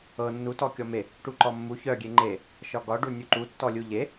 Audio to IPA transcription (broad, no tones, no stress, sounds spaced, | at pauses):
ɤ nː u t ɔ kʲ ɔ m e | ʈ u ǃ ɔ mː u ç œ ɡʲ e ŋ͡ǃ e | ʃ ɒ ɡ ɒ ɖ u nʲ u ǃ u tː ɔ lʲ u ʎ e